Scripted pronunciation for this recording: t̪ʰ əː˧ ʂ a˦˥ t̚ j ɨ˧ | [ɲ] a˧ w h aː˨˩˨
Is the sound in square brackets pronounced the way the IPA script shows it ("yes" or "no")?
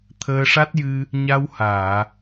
yes